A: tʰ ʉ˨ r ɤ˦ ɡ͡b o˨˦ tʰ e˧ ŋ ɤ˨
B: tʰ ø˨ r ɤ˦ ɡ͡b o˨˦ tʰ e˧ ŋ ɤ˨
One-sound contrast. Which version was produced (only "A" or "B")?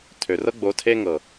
B